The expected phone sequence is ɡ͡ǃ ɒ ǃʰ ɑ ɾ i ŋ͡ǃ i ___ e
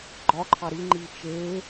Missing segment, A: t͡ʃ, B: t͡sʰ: A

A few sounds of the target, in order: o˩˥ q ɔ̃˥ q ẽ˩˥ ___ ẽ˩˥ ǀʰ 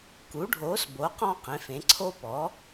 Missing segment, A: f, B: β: A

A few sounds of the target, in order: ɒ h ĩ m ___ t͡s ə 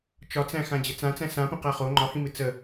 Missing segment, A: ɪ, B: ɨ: B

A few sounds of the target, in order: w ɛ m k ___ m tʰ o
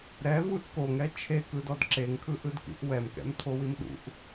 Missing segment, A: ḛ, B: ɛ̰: B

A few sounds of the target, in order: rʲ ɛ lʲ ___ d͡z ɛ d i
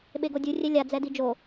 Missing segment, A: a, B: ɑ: A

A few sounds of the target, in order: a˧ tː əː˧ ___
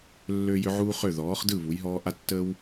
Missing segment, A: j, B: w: B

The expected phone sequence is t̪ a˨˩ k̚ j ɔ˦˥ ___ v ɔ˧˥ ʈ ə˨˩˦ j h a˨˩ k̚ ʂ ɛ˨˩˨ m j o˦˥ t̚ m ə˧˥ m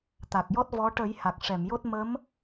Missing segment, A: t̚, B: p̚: A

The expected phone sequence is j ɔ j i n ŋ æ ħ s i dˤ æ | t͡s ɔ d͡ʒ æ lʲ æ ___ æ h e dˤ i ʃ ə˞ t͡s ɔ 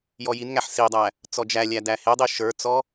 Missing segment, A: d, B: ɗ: A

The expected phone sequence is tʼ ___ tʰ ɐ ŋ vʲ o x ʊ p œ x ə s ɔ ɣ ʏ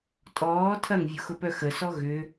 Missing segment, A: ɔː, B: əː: A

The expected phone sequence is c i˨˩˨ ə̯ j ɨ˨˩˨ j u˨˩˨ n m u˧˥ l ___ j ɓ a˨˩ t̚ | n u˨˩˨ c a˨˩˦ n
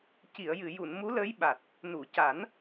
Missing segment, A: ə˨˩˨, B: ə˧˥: B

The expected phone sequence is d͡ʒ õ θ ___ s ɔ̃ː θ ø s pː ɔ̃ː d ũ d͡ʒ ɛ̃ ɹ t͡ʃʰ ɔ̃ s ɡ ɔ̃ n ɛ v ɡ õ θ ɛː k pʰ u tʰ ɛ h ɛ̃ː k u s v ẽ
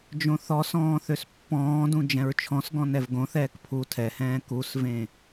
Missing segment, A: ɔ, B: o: A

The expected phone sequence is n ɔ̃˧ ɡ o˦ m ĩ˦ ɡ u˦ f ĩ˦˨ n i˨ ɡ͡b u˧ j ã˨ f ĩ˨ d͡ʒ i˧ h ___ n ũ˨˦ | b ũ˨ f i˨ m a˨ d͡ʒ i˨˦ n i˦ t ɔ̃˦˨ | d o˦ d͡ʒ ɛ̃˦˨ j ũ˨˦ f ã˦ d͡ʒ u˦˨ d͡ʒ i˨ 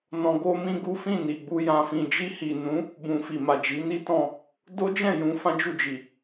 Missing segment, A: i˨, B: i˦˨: A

